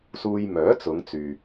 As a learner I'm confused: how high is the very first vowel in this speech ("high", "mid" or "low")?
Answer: high